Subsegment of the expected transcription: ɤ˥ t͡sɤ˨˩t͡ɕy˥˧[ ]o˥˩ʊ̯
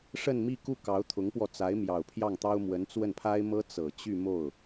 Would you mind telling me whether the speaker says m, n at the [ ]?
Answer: m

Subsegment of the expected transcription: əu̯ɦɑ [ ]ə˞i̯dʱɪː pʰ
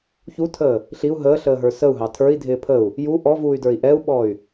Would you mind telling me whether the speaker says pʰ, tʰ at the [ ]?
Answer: tʰ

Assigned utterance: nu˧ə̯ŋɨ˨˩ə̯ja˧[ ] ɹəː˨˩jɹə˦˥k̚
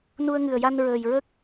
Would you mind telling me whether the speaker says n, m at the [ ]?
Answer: n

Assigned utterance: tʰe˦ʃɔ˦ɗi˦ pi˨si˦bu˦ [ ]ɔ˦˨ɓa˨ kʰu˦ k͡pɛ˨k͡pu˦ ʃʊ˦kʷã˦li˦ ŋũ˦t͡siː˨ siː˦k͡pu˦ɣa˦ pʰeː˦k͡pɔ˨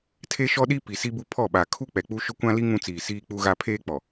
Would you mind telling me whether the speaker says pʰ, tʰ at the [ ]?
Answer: pʰ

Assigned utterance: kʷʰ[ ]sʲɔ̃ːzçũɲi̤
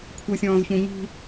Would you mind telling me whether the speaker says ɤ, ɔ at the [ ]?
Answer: ɤ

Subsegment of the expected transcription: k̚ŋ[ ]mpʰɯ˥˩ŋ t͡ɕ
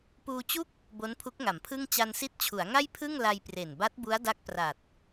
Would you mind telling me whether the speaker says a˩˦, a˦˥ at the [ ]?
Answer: a˩˦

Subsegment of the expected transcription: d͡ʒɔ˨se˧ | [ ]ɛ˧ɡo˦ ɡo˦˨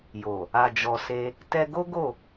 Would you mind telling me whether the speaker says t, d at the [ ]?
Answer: t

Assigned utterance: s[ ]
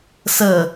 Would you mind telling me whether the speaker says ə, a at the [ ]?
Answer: ə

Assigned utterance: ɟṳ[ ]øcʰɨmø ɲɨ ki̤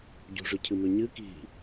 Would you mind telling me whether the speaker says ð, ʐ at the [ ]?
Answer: ʐ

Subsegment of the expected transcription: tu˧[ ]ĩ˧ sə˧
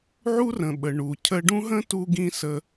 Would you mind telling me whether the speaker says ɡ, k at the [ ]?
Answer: ɡ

